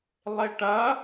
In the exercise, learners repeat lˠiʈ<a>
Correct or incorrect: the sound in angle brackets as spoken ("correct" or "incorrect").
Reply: incorrect